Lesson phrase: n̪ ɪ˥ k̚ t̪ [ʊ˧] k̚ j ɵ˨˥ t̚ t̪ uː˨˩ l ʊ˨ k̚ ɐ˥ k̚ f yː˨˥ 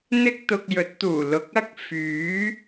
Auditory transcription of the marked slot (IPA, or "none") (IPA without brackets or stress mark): ʊ˧